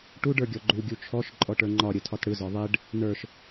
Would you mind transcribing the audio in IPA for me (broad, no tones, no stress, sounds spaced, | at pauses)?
ʈ u ɖ ə˞ ɡʲ ɔ ɡ͡ǃ u ɡʲ u t͡ʃʰ ɔ ʃ ǃʼ ɔ ʈ ə˞ ŋ͡ǃ ɒ ɾʲ ɯ tʰ ɒ t ɽ ɯ z ɒ ðˤ e ɖ | n ə˞ ʃ